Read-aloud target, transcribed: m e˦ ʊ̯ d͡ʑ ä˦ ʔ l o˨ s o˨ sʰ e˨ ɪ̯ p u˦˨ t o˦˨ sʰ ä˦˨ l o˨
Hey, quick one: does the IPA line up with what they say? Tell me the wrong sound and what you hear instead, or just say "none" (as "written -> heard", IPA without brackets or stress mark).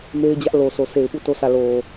ʊ̯ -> ɪ̯